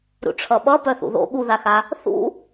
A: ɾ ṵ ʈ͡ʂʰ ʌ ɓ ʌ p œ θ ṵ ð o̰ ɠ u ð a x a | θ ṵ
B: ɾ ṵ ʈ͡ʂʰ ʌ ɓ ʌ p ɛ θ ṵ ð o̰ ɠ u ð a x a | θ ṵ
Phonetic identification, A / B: A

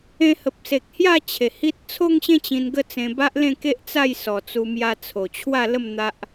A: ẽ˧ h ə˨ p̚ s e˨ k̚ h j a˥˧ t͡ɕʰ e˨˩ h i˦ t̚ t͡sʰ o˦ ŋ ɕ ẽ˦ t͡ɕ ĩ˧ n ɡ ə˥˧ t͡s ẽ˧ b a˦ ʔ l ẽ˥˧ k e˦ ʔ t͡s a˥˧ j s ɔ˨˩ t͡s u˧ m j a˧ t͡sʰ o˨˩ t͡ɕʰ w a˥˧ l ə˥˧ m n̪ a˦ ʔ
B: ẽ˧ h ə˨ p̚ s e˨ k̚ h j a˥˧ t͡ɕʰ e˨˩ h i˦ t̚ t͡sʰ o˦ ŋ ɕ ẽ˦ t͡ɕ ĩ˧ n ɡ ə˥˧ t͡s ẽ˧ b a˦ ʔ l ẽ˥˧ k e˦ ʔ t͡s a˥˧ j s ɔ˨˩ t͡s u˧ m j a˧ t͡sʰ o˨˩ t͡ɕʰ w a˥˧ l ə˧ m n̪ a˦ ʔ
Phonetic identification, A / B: A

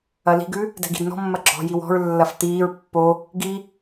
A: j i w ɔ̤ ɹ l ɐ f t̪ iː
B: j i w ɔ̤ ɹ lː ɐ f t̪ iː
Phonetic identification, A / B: B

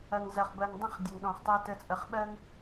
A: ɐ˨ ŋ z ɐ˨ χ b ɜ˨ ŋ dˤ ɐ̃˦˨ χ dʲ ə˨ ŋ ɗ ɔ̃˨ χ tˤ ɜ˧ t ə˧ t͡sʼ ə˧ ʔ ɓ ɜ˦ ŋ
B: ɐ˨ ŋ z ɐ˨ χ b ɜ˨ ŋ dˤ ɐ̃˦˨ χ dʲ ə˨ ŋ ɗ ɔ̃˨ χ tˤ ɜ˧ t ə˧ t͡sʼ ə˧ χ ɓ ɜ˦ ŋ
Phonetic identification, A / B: B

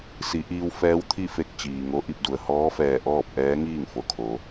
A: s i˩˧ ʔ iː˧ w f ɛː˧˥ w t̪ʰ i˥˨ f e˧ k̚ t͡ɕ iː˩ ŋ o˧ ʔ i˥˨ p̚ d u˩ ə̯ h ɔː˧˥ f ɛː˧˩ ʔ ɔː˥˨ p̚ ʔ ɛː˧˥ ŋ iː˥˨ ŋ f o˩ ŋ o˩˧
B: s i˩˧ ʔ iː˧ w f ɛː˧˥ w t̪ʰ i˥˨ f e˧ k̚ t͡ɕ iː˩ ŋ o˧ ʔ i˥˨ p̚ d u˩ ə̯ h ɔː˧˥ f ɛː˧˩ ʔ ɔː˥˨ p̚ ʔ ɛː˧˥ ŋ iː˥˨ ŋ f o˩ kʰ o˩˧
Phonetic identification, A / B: B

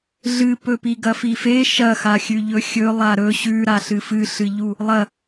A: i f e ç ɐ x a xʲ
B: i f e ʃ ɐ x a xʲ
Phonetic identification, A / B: B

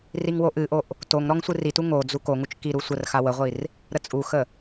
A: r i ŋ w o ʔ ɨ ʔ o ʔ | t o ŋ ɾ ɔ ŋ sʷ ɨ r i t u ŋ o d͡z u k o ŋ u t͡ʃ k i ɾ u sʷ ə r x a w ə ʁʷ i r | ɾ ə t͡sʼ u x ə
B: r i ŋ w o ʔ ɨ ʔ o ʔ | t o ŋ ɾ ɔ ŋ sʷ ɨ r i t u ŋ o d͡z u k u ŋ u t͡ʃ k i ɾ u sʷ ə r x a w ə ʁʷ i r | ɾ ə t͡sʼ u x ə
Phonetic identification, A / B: A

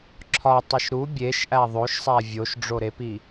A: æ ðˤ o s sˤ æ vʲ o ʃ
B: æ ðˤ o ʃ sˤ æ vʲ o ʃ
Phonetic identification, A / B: B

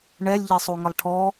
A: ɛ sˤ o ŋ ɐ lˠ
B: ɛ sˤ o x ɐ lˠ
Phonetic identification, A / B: A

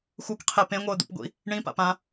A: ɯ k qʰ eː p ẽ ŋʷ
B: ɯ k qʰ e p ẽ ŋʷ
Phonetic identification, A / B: B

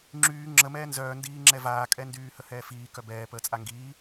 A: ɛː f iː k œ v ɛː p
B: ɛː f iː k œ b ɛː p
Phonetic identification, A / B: B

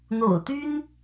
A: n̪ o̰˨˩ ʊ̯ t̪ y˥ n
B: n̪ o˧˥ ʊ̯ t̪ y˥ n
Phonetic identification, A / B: A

